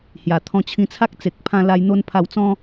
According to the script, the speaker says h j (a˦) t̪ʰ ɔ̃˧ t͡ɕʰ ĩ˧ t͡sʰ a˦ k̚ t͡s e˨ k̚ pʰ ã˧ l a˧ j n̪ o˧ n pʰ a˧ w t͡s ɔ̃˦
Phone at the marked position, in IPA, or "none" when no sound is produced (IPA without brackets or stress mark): a˨˩